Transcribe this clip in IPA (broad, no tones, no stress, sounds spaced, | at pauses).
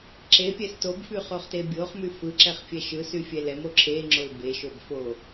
ǁ e pʲ ɛ s t o b f y χ o χ t e bʲ o χ m y f ɯ ǁ ɛ χ fʲ ɛ ʃ ɯ s y fʲ ɛ l ɛ m o ǁʰ e ŋ͡ǁ o l b e ʃ o b f o